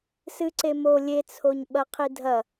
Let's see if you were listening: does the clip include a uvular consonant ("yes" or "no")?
yes